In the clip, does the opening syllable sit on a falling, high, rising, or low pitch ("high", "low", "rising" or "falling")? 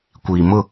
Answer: low